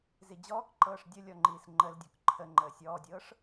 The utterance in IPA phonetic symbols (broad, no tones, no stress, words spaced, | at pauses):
zid͡ʑɔːkǃɤːʂ dʲə lʲɔŋ͡ǃiːsŋ͡ǃəldʲɔk ǃʰə ŋ͡ǃəːsʲɔːdʲɤːʂ